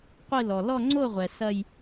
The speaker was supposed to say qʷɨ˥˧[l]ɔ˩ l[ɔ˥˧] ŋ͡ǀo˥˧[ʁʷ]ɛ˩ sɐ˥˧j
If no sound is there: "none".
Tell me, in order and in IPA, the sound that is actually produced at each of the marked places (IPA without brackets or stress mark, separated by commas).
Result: l, ɔ˥˧, ʁʷ